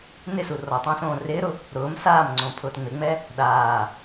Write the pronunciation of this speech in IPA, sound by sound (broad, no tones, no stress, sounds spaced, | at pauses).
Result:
n ɪ s u r ɔ tˤ õ s õː r ɪː ɾ ʊ | ɾ ʊː m s aː m ŋ͡ǀ õ pʰ ʊː t ŋ͡m ɪ ŋ͡m ɛ | ɗ aː